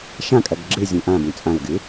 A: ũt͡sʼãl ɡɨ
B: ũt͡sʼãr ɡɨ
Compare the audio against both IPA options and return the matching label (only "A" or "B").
A